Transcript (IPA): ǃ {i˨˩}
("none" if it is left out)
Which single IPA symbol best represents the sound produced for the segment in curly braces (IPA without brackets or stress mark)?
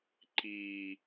i˨˩